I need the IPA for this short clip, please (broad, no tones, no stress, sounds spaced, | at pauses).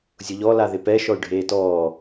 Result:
zʲ ʊ ʎ ɔ l a ð ɪ p ɛ ʃ ɔ y̯ ɖʱ eː t ɔː